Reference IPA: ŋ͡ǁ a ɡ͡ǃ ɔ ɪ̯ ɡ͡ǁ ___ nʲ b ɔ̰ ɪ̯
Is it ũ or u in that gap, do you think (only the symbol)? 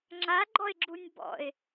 u